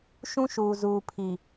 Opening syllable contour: high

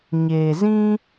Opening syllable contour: low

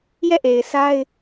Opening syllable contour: falling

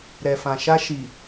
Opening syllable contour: low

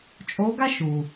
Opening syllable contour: rising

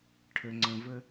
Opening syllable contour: low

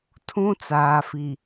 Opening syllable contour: high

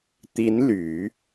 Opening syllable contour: rising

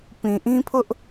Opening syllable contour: low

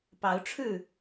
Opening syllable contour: rising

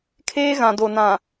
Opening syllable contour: high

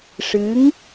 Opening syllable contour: rising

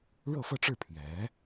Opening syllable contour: falling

